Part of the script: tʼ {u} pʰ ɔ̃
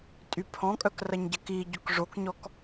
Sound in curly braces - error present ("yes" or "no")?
yes